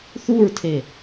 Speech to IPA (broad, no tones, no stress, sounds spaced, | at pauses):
θ u ɹ tʰ e